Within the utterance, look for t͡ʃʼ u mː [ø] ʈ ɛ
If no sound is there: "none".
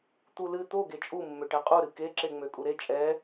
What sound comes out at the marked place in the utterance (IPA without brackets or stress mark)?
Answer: ø